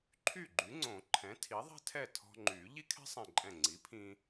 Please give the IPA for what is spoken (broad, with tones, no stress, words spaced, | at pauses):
ǃʰy˥˩ɡ͡ǃy˩˥ŋ͡ǀõ˨˩˦ ǃʰɛ̃˩˥ tʰi˩˥ðˤɛ̤˥tʰɛ˥˩ tʰɔ̤˧ŋ͡ǃy˨˩˦ ʎi˥kʰɛ̤˥sˤɛ̃˧˩ǃʼɛ̃˧˩ ŋ͡ǀi˩˥pʰĩ˧